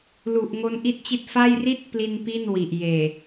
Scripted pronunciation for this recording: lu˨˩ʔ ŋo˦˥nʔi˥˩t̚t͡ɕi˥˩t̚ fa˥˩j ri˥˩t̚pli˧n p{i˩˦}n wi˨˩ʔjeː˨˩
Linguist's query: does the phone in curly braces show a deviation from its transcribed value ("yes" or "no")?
yes